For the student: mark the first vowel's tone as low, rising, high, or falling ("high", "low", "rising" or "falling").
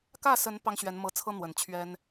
falling